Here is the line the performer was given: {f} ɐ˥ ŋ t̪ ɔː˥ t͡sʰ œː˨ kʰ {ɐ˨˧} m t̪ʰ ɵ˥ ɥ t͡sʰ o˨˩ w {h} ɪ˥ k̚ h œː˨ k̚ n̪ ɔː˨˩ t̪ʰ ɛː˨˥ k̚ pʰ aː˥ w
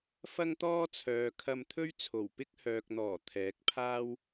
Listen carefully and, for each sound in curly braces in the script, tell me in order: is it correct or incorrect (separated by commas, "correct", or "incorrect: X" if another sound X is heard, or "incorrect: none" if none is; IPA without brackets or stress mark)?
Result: correct, incorrect: ɐ˧, incorrect: p